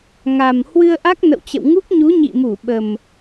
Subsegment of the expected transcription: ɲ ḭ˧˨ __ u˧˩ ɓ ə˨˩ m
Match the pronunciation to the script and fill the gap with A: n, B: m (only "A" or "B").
B